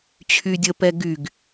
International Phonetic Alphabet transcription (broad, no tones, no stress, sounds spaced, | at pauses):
t͡ɕʰ y dʲ ə p ɛ ɡ y ɡ